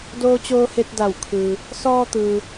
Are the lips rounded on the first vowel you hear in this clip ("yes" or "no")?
yes